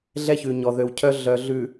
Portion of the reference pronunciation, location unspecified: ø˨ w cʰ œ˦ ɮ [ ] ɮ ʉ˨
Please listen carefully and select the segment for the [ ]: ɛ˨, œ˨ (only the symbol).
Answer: œ˨